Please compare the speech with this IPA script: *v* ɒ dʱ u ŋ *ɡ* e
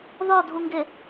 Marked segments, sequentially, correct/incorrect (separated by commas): incorrect, correct